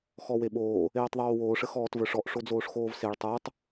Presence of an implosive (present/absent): present